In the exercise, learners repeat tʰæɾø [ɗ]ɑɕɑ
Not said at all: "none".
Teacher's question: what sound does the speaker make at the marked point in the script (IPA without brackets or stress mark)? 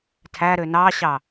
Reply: n